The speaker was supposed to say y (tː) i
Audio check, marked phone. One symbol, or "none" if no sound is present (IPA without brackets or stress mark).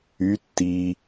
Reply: tː